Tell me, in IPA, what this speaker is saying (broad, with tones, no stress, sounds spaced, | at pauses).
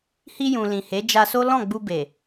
h i˧ j ũ˨ l ĩ˨ h e˨˦ d͡ʒ a˧ s o˦ l ɔ̃˦˨ ɡ͡b u˧ b e˨